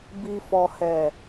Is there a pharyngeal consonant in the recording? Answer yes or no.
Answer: no